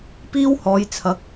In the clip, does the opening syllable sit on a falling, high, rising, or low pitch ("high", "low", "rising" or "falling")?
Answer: high